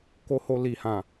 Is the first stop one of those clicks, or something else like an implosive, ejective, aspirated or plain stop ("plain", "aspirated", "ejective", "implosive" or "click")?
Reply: plain